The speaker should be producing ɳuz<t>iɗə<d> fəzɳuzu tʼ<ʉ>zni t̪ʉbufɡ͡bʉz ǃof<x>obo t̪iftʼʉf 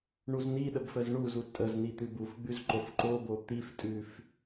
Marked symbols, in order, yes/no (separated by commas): no, no, no, no